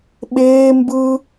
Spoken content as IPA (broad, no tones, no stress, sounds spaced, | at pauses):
ɓ eː m b ɯ